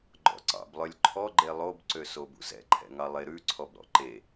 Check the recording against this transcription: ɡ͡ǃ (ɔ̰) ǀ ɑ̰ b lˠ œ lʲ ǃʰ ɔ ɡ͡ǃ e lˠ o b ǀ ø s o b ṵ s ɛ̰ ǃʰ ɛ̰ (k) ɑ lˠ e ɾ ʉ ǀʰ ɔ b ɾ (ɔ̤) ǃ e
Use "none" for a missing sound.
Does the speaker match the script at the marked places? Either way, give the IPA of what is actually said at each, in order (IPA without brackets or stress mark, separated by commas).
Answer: ɔ̰, ŋ, ɔ̰